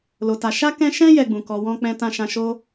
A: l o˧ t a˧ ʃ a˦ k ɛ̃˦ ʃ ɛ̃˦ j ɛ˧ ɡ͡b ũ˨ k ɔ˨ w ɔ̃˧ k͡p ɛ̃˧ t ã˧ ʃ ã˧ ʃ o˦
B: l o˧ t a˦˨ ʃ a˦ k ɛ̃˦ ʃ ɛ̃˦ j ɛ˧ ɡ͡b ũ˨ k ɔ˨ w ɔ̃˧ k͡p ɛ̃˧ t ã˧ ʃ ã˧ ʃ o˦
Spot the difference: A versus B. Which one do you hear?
A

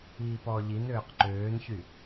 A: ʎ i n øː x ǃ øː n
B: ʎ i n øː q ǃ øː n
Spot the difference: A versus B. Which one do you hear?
B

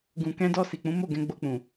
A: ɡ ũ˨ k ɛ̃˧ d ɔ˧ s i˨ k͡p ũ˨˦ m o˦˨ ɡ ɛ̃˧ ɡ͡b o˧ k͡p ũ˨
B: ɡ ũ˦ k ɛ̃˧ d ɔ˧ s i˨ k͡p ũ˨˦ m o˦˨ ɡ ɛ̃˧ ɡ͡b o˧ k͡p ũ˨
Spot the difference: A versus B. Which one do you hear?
A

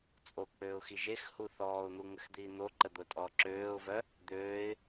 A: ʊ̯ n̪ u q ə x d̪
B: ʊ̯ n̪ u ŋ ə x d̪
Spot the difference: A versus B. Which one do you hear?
B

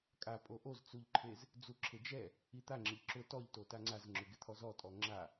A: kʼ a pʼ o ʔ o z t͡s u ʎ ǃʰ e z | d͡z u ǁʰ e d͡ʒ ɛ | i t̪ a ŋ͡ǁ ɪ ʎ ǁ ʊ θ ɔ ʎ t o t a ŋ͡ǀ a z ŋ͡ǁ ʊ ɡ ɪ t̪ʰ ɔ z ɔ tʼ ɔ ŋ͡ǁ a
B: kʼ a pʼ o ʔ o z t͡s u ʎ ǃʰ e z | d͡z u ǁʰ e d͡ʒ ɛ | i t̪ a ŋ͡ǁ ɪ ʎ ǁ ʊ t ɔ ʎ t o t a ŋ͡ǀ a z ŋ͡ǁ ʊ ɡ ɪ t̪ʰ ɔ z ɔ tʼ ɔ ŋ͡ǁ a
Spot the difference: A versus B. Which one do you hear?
B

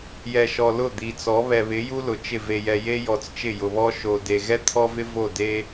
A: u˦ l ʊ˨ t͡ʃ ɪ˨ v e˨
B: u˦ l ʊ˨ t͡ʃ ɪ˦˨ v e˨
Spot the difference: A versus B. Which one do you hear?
B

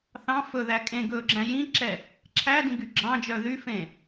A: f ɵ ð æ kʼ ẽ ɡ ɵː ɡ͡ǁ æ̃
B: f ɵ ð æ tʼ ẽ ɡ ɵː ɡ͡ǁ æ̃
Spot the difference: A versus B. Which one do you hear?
A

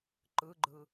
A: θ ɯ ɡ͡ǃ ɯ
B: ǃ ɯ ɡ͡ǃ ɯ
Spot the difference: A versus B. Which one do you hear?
B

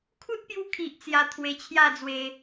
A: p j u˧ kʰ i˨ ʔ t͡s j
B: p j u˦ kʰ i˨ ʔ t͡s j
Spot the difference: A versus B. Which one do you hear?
A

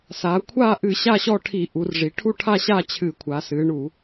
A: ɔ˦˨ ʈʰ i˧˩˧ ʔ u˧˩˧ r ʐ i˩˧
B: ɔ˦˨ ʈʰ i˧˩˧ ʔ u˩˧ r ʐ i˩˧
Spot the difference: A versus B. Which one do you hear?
B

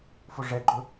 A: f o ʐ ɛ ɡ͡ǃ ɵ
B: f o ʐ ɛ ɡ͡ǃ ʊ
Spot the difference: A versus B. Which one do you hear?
A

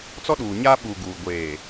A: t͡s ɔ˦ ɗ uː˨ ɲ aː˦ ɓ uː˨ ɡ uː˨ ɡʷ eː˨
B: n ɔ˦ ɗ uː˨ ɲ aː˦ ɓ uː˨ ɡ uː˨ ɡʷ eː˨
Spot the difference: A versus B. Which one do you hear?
A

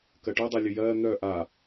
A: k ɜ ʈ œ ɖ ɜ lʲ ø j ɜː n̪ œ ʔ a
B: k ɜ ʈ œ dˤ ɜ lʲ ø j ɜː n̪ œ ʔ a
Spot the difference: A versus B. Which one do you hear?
B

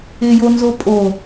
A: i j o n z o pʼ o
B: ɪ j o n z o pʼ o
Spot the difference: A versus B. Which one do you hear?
B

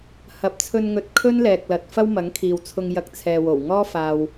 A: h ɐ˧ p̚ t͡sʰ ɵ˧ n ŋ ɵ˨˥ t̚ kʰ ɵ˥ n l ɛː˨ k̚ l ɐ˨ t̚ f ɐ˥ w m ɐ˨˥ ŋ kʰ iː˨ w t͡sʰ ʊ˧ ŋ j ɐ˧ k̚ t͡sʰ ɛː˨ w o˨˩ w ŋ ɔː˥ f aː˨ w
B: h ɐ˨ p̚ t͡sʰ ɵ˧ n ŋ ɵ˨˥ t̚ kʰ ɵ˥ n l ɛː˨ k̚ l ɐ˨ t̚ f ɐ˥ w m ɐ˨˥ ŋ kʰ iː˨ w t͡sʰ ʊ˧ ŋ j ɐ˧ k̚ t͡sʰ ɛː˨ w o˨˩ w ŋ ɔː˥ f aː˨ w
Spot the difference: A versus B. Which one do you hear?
B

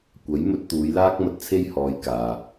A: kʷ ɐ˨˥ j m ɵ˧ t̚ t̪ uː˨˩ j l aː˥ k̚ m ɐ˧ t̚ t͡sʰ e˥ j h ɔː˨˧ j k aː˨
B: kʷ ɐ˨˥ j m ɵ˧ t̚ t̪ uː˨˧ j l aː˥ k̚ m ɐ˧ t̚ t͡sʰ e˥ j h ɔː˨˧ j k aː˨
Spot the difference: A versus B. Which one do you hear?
B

